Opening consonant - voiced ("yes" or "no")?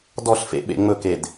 yes